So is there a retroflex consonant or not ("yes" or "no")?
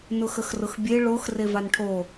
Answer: yes